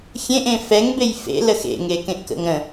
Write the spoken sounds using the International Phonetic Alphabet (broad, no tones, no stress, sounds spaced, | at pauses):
xʲ ẽ ʔ ẽ f ɛ ŋ b e j f ḛ l ə x ḛ ŋ e k ẽ ʔ k ə̰ ŋ ɾ ə̃